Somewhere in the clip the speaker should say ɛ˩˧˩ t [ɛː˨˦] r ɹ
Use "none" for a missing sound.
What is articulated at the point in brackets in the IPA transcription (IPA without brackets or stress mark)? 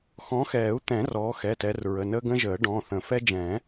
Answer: ɛ˨˦